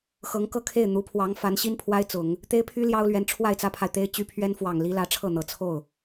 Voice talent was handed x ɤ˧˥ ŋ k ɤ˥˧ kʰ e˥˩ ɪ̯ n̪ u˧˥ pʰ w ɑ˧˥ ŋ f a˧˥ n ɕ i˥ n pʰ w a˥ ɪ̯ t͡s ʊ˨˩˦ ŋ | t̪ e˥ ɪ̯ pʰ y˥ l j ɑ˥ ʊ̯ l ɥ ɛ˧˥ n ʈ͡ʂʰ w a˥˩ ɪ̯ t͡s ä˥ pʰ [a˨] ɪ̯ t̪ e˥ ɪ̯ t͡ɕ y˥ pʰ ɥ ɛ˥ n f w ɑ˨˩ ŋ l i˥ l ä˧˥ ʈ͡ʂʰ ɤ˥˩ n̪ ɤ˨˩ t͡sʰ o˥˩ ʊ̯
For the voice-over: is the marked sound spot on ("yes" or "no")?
yes